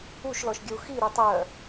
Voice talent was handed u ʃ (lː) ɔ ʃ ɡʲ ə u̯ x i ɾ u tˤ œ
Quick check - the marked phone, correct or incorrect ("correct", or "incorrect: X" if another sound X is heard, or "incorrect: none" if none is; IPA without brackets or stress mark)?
incorrect: l